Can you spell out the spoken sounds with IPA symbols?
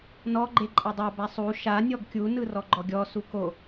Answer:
n ɔ ɡ͡ǃ e ǃʼ a dˤ a b a sˤ u ʃ a nʲ ɔ ɡ kʲ u n ɯ r ɔ ɡ͡ǃ ɔ ɡʲ ɔ s u k o

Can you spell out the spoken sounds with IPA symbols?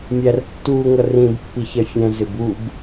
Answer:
mʲ æ r tː uː ŋ ʌ r ĩ b pː i ç ɛ fʲ ɛ̃ z ɪ b u b

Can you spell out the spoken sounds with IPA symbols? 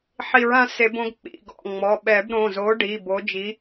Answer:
ħ i˨˩˦ ɹ ã˨˥ s e˨˩˦ b õ˨˥ ɡ k͡p ḭ˩˧˩ ɡ ɔ̰˩˧˩ ŋ͡m ɔ˩˧˩ ɓ ɛ˨˩˦ b ɾ õ˩˧˩ z o˨˥ ɖ i˩˧˩ b o˨˥ d͡ʒ i˨˥

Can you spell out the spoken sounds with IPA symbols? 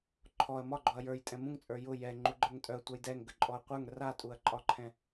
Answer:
ǃʰ ɔ ɐ̯ m ɒ ɡ͡ǃ ɔ ɐ̯ j ə˞ j tʼ ɛ̃ m ũ ŋ t͡sʼ ə˞ j ʊ j ɛ ŋ͡ǃ u ɡ͡ǃ ə˞ ŋ tʼ œ ɐ̯ tʷ œ j d ɛ ŋ ɡ ə ǃʼ ɔ ɐ̯ qʷ ə˞ ŋ r a tʼ u ɐ̯ ǃʼ ɒ ǃʰ ɛ̃

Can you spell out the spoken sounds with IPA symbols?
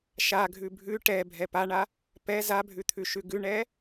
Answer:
ʃ a ɡʱ ʉ bʱ ʉ ʈ ɛ bʱ ɛ p a ɳ a | p ɛ z a bʱ ʉ t̪ʰ ʉ ʃ ʉ ɡ ʉ ɳ ɛ

